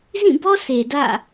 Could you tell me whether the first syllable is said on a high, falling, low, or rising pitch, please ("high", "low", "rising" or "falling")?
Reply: falling